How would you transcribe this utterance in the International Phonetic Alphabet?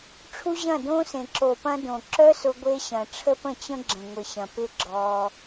ʈ͡ʂʰu˦ʑɐ̃˦˨dõ˦sẽ˨ ǁo˨pɐ̃˧ dõ˨ ǁœ˦sʊ˧ɡʷe˧ ɕɐ̃˨ʈ͡ʂʰə˦pə̃˦˨t͡ɕə̃˦ ɡ͡ǁə̃˨ŋʷɪ˨ɕɐ̃˨ pɪ˦ ɡ͡ǁɔ˧

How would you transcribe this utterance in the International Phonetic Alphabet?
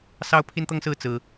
sɑ˥ʊ̯pʰi˥nt̪ɤ˥ŋsɹ̩˥ t͡sɹ̩˥

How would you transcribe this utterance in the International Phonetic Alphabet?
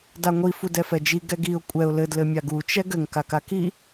daŋʷi fudɛfɛd͡ʒi ɡɛɡiʊ̯ kʷʼɛʊ̯ lɘd lɘmʲaɡu t͡ʃɛɡɘŋ kakaki

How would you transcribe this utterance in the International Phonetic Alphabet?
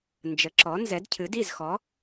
nd͡ʒə˩˥ǁɔ˩˥ nzɛ˩˥dcʰɨ˩˥di˥˩zxɔ˩˥

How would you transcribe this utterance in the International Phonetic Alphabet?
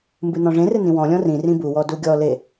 mbɨnɔ̃ʐẽrɨ nĩwɔ̃lʲɔ̃ rĩ rĩbuwɔ duɡʲɔle

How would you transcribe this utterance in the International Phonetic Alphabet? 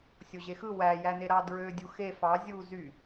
sʲoʑexɯ wæ jæneɾɑ dɹø dʲuxe fɑ zʲu zy

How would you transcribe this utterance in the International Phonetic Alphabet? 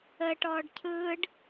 ə ʈɔːɖcʰɯːɖ

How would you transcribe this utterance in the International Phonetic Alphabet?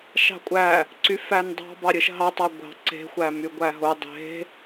ʃɑ̤kʷʼæ | ǀyfændˤɑ̤ bɑɾʲɯʃɦɑ tˤɑɡʷɑ̤ ǀe̤ xʷæmyɡʷæɦo dˤe̤

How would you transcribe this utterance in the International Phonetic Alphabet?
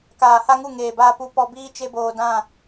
kaː˨ha˦ŋu˦˨ ŋeː˨baː˧ pu˧ pɔ˧biː˦ t͡ʃe˦boː˧dã˦˨

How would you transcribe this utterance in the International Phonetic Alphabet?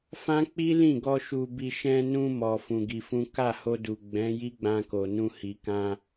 fã˦k͡pi˦lĩ˦˨ɡɔ˧ ʃu˧bi˧ ʃɛ̃˧nũ˧ mɔ˧fũ˧ɡi˧fũ˦ ka˦˨ho˧du˨ ɡ͡bɛ̃˨˦ ji˦ɡ͡bã˧ko˨nũ˧ hi˨kã˧

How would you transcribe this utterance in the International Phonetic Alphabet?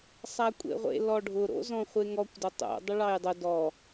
sˤakʷʼḛʁʷḛ lɔɖʱʊ ɾo̰zɔ̃χʷeŋɔkʷ dʊtˤo̰ dˤʊɭɑjdˤʊ dɔ

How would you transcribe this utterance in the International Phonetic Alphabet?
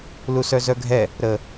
lusœzœɡʱɛ | ɾə

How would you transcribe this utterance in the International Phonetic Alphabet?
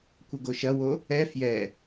kʷɘɡoʃɐwo | ɛ fjɛ

